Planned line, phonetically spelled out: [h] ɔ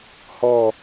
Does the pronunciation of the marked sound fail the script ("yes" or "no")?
no